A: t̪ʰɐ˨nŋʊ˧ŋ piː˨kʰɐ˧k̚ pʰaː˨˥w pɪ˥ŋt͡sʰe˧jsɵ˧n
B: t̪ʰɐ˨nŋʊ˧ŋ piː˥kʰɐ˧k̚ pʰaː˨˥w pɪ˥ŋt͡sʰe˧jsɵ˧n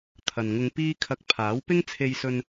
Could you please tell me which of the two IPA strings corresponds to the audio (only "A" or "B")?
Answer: B